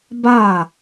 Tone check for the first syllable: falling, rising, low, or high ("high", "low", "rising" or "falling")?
falling